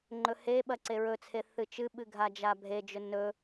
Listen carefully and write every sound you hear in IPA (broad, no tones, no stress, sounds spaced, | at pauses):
ŋ͡ǃ ɵ h e ɓ ɐ ǀ e ɹ ɵ t͡sʰ e θ ɨ t͡ʃ ɨ ɓ ɨ ɡʱ a d͡ʒ a bʱ e d͡ʒ ɵ n ɵ